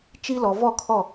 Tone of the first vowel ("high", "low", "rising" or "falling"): high